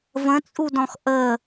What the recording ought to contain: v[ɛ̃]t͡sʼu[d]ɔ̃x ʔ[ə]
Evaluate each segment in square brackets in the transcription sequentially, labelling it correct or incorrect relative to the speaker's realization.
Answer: incorrect: ə̃, correct, correct

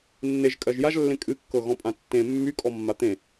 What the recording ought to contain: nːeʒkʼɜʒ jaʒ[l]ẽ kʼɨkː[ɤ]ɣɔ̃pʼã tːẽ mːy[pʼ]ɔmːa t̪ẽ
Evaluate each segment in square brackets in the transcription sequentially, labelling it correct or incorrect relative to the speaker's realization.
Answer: incorrect: lː, correct, incorrect: kʼ

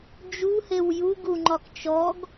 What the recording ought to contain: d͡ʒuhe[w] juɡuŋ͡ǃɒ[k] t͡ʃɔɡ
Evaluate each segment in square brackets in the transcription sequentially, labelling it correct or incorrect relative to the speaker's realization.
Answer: correct, correct

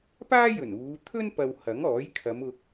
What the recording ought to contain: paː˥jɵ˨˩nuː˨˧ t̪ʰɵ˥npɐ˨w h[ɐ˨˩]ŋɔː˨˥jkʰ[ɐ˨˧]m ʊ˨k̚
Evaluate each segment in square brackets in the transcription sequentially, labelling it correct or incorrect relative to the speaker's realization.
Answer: incorrect: ɐ˨˥, correct

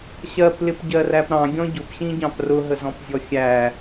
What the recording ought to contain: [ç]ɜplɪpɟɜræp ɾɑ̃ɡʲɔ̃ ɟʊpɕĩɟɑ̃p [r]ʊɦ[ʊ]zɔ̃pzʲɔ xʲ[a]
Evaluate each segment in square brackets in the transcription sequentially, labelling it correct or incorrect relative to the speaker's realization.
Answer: incorrect: ɕ, correct, incorrect: ə, incorrect: æ

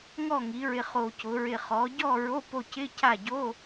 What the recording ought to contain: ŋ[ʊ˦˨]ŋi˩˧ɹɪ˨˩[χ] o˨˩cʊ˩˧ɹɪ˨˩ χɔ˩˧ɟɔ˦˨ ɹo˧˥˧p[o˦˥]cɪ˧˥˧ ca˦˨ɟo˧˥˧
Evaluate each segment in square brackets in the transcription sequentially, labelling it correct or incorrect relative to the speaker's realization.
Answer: incorrect: ɔ˦˨, correct, incorrect: o˦˨

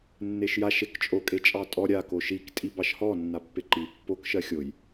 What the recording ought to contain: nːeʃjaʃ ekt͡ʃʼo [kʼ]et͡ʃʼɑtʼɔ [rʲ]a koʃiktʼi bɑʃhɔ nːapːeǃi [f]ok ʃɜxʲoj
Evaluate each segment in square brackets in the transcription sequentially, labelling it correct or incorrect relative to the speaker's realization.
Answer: correct, incorrect: ɾʲ, incorrect: pː

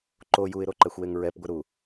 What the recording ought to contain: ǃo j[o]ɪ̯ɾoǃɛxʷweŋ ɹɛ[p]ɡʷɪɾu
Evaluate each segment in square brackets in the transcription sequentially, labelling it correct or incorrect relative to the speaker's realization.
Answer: incorrect: u, correct

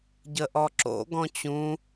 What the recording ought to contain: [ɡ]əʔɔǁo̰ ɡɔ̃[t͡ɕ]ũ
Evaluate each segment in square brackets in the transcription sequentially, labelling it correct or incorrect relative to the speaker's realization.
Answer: incorrect: ɟ, correct

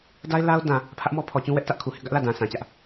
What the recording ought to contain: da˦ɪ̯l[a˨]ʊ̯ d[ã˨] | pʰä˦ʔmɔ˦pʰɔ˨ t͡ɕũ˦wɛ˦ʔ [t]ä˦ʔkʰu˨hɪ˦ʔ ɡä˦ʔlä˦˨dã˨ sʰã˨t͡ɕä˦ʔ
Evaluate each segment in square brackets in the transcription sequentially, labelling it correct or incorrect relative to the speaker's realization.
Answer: incorrect: a˦, correct, correct

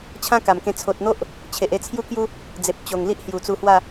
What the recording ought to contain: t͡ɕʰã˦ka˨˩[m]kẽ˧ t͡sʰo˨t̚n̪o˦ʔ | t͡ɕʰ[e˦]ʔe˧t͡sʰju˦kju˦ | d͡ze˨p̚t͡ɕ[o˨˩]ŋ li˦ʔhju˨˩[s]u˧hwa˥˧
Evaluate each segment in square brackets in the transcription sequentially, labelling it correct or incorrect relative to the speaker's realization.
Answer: correct, incorrect: e˨, correct, incorrect: t͡s

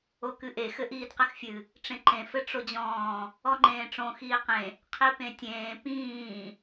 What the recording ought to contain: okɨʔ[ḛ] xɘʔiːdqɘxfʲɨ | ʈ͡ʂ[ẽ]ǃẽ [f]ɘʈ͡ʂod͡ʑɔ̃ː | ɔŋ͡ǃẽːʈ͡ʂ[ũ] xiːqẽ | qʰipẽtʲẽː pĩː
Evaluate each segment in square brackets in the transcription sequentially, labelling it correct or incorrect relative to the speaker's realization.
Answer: incorrect: e, correct, correct, incorrect: õ

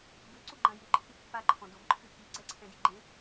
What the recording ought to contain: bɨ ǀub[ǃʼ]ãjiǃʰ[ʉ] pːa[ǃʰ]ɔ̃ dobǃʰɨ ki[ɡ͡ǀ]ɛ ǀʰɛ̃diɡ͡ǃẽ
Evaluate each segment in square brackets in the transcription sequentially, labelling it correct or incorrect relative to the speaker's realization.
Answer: incorrect: ɡ͡ǃ, incorrect: ɨ, correct, correct

